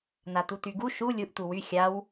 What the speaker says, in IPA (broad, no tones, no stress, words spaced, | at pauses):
nat̪utyɡu ʃu lʲuʔ t̪uwy xʲaw